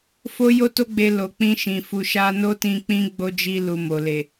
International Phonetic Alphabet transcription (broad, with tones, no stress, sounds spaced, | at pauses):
f o˦ j o˦ t o˦ ɡ͡b e˧ l o˨ k͡p ĩ˧ ʃ ĩ˨ f u˨ ʃ a˧ n o˦ t ĩ˧ k͡p ĩ˦ ɡ͡b o˦ d͡ʒ i˧ l u˨ m o˨ l e˨